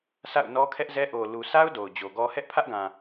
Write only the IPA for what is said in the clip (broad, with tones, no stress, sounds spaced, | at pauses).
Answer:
sʰ a̰˦˨ ʊ̯ n ɔ˦ kʰ ɛ˦ ʔ z ɛ˦ ʔ o˨ l u˨ sʰ a˦ ʊ̯ d o˨ ʊ̯ d͡ʑ o˨ ɡ ɔ˦ h ɛ˦ ʔ pʰ ä˦ ʔ ɡ ã˨